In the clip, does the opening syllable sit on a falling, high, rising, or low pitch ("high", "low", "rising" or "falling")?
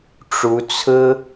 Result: rising